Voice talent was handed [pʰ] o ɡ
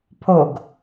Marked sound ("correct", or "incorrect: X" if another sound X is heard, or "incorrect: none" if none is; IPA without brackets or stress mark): correct